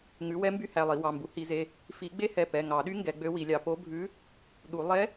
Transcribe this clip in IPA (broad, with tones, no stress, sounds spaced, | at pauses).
ŋ ʉ˩˥ w ɛ˧˥ m b y˧˥ h æ˩˧˩ lˠ i˨˩˦ w ɑ˩˧˩ m b u˩˥ h i˨˩˦ z e˩˧˩ | f i˨˩˦ ɡ͡b e˧˥ h ɛ˩˧˩ p ɛ˩˧˩ ŋ ɑ˨˩˦ ɗ y˧˥ ŋ ɡ ɛ˩˥ ɡ͡b ø˧˥ w i˨˩˦ lʲ ɑ˩˥ p o˧˥ bʱ ʉ˧˥ | ɗ u˨˩˦ lˠ ɛ˧˥